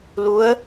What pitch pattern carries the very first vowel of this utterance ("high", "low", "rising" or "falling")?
rising